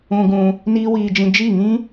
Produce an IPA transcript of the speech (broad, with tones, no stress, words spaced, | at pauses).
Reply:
ũ˧ɡũ˧ | niː˦wiː˧d͡ʒĩ˧ d͡ʒi˦˨ŋĩ˦